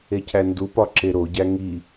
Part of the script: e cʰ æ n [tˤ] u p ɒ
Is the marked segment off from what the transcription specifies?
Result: yes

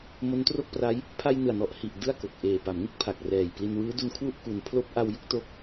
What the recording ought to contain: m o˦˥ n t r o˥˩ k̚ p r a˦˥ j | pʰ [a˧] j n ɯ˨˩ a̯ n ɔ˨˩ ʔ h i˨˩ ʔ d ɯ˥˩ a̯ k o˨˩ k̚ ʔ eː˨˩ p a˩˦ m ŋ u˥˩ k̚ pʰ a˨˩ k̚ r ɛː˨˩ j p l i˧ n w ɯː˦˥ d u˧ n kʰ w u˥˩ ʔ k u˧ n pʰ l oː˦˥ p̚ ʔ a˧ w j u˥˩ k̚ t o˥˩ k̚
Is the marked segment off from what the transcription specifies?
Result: no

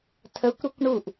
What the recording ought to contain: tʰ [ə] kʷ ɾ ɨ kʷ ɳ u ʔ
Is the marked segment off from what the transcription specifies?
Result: no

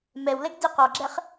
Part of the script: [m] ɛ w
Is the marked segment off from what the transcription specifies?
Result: no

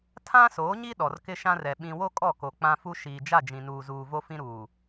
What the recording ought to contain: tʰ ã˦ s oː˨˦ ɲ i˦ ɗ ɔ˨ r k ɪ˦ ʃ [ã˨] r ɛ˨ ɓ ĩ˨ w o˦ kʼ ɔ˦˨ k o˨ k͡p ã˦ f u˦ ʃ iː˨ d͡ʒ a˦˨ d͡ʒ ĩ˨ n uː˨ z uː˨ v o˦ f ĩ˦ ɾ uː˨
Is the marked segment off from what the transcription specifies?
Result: yes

